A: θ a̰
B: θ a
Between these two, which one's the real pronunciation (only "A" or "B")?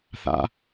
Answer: A